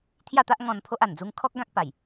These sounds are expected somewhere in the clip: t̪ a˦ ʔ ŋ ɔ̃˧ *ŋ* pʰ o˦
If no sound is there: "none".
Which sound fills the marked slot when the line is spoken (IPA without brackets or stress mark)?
n